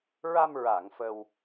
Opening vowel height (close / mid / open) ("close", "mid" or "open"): open